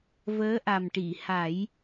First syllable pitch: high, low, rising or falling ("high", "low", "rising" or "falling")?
rising